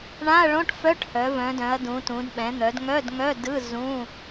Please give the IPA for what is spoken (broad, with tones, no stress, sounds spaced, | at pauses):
ɳ ã˧˥˧ ɐ̯ ɭ õ˧˥˧ ʈ f œ˧˥˧ ʈ h œ˩˧ v œ̃˩˧ d œ̃˩˧ ɐ̯ d ũ˩˧ t ũ˩˧ d ɓ ɛ̃˩˧ n̪ œ˩˧ d ŋ œ˧˥˧ d ŋ œ˧˥˧ d ɯ˧˥˧ z ũ˧˥˧